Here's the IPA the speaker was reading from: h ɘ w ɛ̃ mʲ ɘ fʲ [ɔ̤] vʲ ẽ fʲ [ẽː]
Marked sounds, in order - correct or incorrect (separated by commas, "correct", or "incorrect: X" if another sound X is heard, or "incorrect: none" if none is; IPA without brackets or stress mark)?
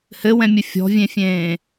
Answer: correct, correct